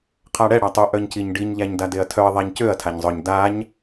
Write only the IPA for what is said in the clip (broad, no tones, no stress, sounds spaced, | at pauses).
qʰ a ɽ ɛ ɽ a tˤ ø ʔ œ ɲ c i ɲ ɖ i ɲ ʎ æ ɲ d a d e ɐ̯ tʰ œ ɐ̯ ðˤ æ ɲ c ø ɐ̯ tʰ a ɲ zˤ œ ɲ d a ɲ